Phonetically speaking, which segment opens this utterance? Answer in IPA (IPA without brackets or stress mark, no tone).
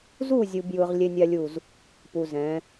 z